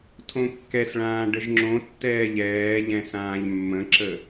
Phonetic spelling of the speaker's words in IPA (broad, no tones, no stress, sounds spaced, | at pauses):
tʰ õ kː ɛ s ɭ ãː ɖ ə ʒ ŋ͡ǁ õ tː ɛː ʎ ɛː ʎ ɛ̃ s ãː ʎ mː ə̃ ǁ ə